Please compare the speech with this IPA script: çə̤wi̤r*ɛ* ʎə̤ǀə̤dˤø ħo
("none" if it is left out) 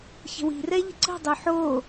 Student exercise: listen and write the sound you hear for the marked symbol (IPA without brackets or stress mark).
ɛ